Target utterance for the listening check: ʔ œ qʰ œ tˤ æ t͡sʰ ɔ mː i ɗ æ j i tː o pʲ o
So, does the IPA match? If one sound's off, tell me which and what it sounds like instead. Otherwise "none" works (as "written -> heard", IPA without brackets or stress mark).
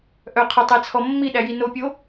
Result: tː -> n